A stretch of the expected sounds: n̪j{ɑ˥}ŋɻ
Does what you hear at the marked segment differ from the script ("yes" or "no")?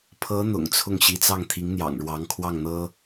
yes